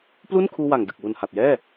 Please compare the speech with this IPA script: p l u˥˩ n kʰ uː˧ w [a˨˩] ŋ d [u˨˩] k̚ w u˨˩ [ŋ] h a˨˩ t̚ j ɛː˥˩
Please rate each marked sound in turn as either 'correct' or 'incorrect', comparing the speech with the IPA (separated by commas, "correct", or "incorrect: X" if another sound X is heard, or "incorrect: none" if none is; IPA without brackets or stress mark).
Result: correct, incorrect: ɯ˨˩, incorrect: n